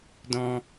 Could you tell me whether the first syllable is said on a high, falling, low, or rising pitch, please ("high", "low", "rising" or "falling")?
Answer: low